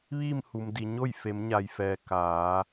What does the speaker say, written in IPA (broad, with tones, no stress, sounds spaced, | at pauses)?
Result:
ʋ iː˥˨ m h u˩ m d i˩ ɲ o˥˨ j f e˩˧ m ɲ a˩ j f ɛː˩ k aː˩˧